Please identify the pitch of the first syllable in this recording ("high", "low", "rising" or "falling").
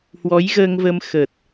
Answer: rising